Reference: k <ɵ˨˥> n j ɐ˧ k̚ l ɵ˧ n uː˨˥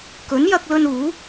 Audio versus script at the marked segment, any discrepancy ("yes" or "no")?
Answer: no